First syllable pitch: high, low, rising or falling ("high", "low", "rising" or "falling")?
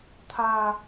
low